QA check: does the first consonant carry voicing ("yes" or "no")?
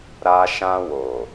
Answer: yes